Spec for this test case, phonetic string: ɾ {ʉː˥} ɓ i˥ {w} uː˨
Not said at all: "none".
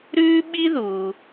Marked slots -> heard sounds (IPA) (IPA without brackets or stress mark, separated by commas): ʉː˥, ð